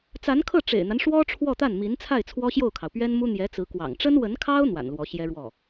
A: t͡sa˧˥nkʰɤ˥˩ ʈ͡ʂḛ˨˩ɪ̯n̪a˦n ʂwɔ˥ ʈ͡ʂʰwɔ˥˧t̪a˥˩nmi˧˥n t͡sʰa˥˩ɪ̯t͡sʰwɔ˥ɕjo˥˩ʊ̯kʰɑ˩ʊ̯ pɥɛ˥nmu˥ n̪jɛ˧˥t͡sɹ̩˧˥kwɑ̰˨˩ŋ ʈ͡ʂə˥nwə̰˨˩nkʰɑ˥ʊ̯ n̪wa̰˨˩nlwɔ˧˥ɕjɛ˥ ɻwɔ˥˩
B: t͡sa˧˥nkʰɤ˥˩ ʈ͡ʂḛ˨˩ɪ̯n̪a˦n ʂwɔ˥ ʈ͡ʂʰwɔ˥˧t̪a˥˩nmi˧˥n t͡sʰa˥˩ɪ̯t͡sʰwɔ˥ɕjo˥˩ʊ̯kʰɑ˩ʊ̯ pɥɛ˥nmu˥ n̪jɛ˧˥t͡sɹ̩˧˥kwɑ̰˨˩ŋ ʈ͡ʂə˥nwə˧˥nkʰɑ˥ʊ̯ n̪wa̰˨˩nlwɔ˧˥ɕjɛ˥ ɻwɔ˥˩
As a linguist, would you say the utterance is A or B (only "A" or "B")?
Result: B